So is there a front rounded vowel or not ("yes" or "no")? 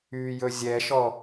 yes